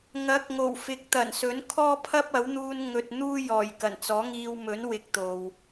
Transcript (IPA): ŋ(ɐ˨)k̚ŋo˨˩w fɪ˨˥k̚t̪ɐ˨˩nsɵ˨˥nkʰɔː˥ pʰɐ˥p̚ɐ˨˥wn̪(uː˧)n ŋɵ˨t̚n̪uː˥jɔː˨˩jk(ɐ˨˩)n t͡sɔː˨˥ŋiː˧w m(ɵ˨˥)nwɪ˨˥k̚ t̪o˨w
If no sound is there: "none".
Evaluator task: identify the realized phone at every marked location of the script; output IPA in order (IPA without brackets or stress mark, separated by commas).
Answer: ɐ˨˥, uː˧, ɐ˨˩, ɵ˨˥